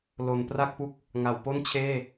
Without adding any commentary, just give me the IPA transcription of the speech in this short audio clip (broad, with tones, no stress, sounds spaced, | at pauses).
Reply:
l o˩˦ n p r a˥˩ k̚ p u˥˩ k̚ | ŋ a˩˦ w p o˥˩ n t͡ɕʰ eː˥˩